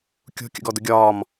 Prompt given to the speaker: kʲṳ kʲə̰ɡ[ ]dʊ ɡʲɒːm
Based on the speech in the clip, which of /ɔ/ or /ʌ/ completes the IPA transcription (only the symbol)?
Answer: ɔ